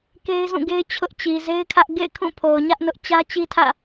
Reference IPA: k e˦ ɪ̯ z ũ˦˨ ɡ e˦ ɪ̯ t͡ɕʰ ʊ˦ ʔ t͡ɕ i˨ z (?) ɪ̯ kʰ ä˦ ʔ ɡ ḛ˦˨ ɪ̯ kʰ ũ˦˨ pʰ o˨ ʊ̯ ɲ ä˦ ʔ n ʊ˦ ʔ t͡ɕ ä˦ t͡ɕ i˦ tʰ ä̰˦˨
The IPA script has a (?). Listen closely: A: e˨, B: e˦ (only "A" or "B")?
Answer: B